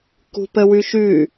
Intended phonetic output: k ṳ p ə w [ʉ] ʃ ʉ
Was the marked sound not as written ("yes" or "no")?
no